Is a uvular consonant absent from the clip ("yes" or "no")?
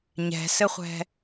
no